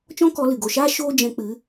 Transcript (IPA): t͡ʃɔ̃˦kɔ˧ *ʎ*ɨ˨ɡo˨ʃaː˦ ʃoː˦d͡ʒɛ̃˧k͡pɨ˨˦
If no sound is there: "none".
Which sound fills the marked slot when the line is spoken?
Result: l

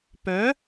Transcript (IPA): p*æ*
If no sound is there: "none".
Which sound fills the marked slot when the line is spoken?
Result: œ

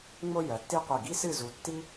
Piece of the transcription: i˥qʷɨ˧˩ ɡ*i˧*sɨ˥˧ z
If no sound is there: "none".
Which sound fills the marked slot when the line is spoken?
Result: i˥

